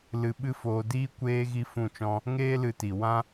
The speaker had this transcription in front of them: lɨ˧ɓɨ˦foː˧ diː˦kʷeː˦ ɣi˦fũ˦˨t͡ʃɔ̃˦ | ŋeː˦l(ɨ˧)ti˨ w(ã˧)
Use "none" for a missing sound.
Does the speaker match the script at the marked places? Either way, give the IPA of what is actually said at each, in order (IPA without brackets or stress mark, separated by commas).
ɨ˧, ã˦